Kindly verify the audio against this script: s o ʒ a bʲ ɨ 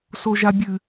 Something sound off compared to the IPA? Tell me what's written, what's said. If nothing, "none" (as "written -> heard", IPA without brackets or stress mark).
none